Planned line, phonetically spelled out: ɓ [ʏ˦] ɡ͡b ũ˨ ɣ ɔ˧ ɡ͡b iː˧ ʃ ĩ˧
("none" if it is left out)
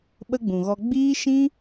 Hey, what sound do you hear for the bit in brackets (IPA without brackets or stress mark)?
ə˦